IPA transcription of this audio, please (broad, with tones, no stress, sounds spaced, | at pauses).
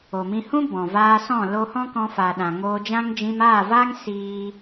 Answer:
o˨ m ĩ˧ h ũ˦ b ɔ̃˨ v aː˧ s ɔ̃˦˨ l o˧ h ɔ̃˦ k ɔ̃˧ f a˨ ɗ ã˨ ŋ oː˧ d͡ʒ ã˦ ŋ d͡ʒ ĩ˧ m aː˦˨ v aː˦ ŋ s iː˦